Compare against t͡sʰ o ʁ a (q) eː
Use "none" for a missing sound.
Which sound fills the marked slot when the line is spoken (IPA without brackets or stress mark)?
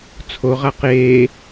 q